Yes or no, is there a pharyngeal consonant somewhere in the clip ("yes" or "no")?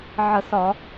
yes